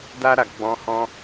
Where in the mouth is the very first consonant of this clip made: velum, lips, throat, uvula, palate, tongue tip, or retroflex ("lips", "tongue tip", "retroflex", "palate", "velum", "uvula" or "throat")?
tongue tip